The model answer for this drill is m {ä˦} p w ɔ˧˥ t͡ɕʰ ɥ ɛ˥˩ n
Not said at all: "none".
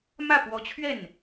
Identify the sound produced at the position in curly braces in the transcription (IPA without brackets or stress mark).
ä˥˩